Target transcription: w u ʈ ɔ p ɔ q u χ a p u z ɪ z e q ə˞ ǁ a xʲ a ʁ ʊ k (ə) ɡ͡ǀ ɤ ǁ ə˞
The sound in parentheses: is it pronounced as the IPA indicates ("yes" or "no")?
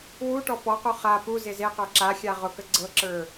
yes